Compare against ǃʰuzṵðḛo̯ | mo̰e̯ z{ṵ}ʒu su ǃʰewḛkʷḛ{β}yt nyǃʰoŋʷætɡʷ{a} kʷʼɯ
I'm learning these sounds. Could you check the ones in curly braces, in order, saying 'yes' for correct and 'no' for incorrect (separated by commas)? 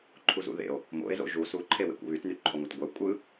no, yes, no